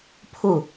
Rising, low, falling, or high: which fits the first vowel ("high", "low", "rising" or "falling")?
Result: falling